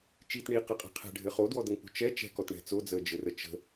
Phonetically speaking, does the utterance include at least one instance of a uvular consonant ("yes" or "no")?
yes